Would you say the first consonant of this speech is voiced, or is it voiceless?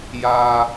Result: voiced